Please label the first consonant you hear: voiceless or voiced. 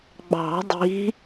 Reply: voiced